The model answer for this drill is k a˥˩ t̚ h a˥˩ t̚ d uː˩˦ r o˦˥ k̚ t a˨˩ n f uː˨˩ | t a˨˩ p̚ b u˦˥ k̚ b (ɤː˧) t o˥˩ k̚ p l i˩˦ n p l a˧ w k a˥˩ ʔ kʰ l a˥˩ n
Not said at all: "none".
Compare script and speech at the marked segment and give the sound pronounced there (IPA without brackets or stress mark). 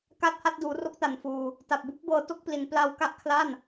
ɤː˧